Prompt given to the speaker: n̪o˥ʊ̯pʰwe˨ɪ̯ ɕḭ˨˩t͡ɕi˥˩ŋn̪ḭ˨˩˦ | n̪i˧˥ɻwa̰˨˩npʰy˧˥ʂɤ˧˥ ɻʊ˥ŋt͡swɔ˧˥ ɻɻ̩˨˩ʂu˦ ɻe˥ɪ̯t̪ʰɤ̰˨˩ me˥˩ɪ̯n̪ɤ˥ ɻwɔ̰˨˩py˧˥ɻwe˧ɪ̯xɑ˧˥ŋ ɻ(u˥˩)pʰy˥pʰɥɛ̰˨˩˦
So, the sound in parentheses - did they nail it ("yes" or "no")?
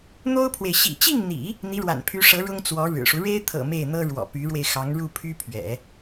yes